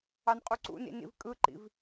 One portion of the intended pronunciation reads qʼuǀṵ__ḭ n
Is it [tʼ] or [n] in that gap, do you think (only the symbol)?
n